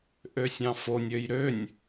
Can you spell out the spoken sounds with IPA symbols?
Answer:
ʔøsʲɑ̃fonʲøj ɾønʲ

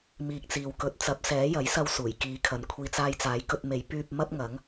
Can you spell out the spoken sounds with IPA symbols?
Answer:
miː˨k̚t͡siː˨w kɵ˨t̚t͡sɐ˨˥p̚sɛː˨˥ jɐ˨˥jsɐ˧w suː˨˩jkiː˨˥kʰɐ˨nkʷʰiː˧ t͡saː˧jt͡saː˨˥jkɵ˧t̚me˨˥j pyː˧p̚ mɐ˥p̚ŋɐ˨˥ŋ

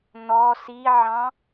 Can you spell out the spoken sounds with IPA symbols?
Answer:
n̪ɔ siʕɑ̃

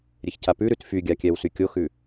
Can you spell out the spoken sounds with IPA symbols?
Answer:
ɾʲeçcʰapʉɾʉt fyɡʲa kʲɛwsykʲoxʉ

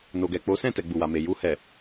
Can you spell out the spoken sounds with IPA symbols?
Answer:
no˨ɡɛ˨k͡po˨˦ sɛ̃˦˨tɛ˨ ɡ͡bu˨wa˨me˨ ju˧hɛ˨

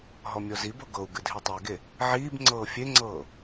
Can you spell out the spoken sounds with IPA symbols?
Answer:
ɦɔmʲɔzibɤ ɡɤu̯ ɡɨdʱitˤeɡe | ʕiːbŋ͡ǀɤː fʲeŋ͡ǀɤː

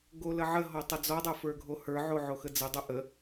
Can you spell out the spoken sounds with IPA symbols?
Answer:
ɡoləʕəɦɔ tˤəd͡zɔdˤo fə˞ɡʱohə˞ʕo ʕoxəd͡zədˤo ʔə

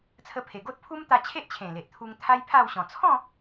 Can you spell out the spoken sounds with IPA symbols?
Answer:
t͡sʰə˧pʰe˨˩ ɡo˦t̚pʰu˦mt̪a˧ t͡ɕʰe˦ʔt͡ɕʰẽ˨˩le˨ʔ t̪ʰu˧ŋ t̪ʰa˦jpʰa˥˧wɕɔ̃˨˩ t͡sʰɔ̃˥˧

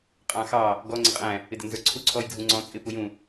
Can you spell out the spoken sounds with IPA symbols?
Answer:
qʼɑ̃ xɑ | ɡɔ ŋ͡ǀɪqʼæ̃ | ɪdɪnzə˞ǀʰu ǀʰɔjdʱũŋ͡ǀɔ̃ t͡sʼɪ pujũ

